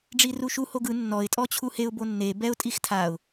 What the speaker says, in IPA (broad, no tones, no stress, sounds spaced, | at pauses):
ɖ͡ʐ i r u ʃ u h o ɡ ɯ nː ɔ ɪ̯ tʼ ɔ t͡ɕʰ u h e ʊ̯ b o nː e b ɛ ʊ̯ tʼ i x tʰ a ʊ̯